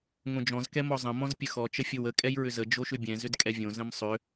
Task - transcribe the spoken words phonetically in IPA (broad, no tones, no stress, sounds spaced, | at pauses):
ŋ õ d͡ʒ ɔ̃ z k ɛ m ɔ zˤ ə̃ m ɔ̃ z pʲ ə x ɔ t͡ʃ ə fʲ o w ə kʼ ɛ j ɹ ʏ z ə d͡ʒ o ʃ ʏ bʲ ɛ̃ z ʏ d kʼ ɛ vʲ õ z ə̃ m sˤ ʏ